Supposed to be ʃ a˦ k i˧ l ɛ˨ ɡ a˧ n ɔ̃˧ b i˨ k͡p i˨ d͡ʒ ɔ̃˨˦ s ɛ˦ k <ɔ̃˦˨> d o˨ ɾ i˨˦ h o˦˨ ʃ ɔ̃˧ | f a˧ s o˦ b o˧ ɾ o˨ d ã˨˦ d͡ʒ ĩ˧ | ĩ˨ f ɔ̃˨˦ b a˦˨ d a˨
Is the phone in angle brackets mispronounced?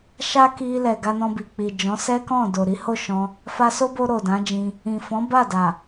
no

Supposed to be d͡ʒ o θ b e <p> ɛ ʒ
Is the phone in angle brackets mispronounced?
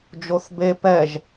no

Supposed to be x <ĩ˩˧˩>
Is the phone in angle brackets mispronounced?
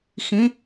no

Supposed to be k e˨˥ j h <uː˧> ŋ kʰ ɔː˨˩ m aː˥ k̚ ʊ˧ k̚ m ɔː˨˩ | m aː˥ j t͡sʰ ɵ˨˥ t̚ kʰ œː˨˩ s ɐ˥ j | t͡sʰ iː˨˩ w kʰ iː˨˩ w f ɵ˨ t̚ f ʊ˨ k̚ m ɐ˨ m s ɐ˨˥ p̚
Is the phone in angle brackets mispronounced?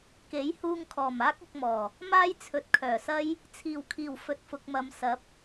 no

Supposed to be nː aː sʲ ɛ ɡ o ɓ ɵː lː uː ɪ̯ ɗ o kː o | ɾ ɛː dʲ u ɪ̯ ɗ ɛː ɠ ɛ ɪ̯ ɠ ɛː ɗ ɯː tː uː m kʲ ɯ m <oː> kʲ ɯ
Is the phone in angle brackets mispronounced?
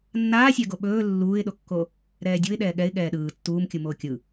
no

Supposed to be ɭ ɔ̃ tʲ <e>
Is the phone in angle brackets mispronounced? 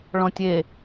no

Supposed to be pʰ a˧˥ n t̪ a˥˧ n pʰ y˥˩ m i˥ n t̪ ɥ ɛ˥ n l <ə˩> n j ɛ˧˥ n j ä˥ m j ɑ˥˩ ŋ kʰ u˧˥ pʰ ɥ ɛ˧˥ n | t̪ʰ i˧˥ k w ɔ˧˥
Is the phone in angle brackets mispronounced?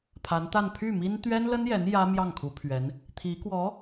yes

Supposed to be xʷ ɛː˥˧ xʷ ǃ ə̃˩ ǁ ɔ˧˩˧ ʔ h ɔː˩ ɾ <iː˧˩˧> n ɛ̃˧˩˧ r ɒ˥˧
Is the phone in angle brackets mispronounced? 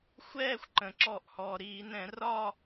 no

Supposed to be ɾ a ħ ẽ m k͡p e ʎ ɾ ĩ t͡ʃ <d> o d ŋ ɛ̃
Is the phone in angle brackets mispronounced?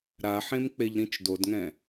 no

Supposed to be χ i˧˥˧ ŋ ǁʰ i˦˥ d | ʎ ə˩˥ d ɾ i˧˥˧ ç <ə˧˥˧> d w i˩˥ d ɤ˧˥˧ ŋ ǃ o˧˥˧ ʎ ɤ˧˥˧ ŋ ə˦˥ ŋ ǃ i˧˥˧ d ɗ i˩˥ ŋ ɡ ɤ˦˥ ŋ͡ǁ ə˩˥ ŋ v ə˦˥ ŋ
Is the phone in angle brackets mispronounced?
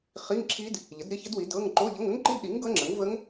yes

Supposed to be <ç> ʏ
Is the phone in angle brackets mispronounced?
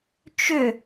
yes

